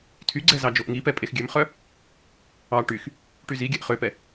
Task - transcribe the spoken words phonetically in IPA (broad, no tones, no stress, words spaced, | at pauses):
tʰyɡ͡ǀɛ zɑd͡ʒoʔŋipɛ pʼexɡʲømχœ | ɑ ʈyx | ʈyziɡʲɛʔ χøpɛ